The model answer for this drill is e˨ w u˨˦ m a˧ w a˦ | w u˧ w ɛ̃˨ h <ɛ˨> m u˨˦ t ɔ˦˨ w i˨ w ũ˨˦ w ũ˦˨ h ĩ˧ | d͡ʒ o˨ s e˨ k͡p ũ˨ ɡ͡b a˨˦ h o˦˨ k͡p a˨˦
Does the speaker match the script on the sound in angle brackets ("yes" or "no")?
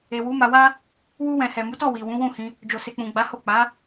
yes